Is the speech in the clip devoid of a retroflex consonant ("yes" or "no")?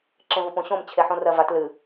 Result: yes